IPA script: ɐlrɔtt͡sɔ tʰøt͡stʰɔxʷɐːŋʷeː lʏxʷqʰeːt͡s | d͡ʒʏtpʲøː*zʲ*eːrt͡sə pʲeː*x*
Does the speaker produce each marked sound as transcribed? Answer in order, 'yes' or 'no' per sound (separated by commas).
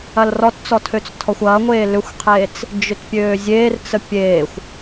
yes, no